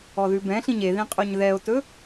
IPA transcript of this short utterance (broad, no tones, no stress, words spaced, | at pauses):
ɔðʉbɛ̃ɬĩɲ eðĩqʼoɲ ðɛo̯tɵ